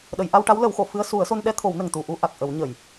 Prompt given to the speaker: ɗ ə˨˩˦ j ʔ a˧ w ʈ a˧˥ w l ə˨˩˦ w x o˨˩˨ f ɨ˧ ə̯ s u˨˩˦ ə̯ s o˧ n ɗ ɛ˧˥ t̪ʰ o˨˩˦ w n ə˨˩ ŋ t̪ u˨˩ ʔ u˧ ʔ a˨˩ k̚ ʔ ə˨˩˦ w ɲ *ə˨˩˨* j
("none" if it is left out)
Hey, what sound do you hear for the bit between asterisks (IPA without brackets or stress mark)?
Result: ə˨˩˨